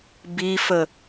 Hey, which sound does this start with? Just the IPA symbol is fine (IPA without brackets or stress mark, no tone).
b